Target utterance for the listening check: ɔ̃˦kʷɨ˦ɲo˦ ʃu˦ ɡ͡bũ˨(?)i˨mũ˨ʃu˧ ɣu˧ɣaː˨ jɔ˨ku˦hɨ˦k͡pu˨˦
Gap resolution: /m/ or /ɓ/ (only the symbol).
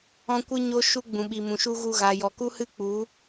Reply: ɓ